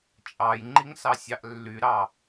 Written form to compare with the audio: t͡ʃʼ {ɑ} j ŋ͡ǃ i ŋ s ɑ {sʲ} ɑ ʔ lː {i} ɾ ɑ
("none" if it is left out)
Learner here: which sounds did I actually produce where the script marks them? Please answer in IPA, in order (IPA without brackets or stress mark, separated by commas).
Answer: ɑ, sʲ, y